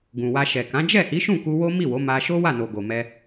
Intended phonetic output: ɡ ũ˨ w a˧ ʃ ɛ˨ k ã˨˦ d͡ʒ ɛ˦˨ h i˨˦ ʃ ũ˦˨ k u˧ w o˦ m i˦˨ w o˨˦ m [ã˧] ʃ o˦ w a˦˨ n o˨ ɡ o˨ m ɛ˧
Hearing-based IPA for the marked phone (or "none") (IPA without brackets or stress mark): a˧